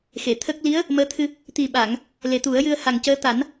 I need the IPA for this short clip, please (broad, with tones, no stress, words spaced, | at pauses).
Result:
xe˨˩˨t̪ʰə˦˥k̚ li˧˥ə̯ | məː˧˥t̪ʰɨ˧ | t̪i˨˩ɓa˨˩˨ŋ | le˨˩t̪u˨˩˦ə̯ jɨ˧ə̯ha˨˩ŋcəː˧˥ t̪a˨˩˦n